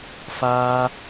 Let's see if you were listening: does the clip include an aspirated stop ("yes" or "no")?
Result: no